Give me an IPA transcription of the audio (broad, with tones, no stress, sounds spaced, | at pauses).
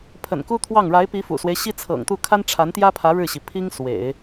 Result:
pʰ ə̰˨˩ n k u˥ t̪ʰ w ɑ˥˩ ŋ ɻ a˧˥ ɪ̯ p i˧˥ f ṵ˨˩ s w e˦ ɪ̯ ɕ i˥ t͡sʰ ɤ̰˨˩ ŋ t̪ u˥˩ kʰ a˥ n ʈ͡ʂʰ a˧˥ n t̪ j ä˥ pʰ ä˧˥ ɻ ɻ̩˥˩ ɕ i˩ pʰ i˥ ŋ s w ḛ˨˩˦ ɪ̯